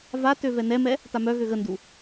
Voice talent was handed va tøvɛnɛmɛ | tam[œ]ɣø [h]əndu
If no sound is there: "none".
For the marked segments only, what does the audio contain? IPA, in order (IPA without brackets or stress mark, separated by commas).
œ, ɣ